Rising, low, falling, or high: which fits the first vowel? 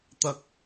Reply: low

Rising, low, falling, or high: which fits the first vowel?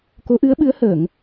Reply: rising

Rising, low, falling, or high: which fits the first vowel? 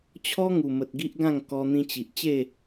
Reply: high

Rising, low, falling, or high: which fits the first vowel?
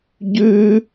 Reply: high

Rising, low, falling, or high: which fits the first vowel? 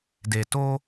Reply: low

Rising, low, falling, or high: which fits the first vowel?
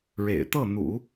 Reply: low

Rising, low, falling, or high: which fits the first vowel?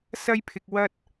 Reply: high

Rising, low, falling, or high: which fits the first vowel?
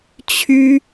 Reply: high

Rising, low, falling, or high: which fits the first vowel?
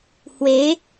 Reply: rising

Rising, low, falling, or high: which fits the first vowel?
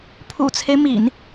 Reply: low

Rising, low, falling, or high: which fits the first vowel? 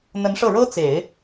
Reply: rising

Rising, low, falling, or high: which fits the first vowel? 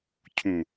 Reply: low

